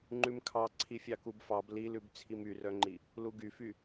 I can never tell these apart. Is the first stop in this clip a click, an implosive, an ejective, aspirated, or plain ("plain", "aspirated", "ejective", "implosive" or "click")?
click